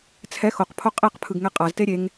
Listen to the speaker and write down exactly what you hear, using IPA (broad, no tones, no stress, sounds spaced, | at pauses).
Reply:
t͡sʰ ɛ x o q pʰ o qʼ e q pʰ ɯ ɡ ŋ ɛ qʼ a z t e ɾʲ e ŋ